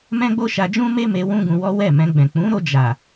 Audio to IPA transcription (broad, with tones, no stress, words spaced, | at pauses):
mɛ̃˦ɡ͡bo˦ ʃa˧d͡ʒũ˦me˦me˧ wũ˦ɡũ˧wɔ˦ wɛ˦˨mɛ̃˧ ɡ͡bɛ̃˨k͡pũ˨˦ɾo˧ d͡ʒa˨